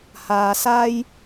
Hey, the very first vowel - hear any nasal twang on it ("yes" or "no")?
no